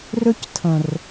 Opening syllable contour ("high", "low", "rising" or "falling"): high